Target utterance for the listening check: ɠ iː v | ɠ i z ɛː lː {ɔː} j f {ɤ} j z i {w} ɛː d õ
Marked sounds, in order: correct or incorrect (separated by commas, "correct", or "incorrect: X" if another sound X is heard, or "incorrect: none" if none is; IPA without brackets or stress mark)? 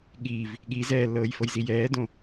incorrect: ɤː, correct, incorrect: j